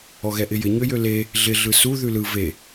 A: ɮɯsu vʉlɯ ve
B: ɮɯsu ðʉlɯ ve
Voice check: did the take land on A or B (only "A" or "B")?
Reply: B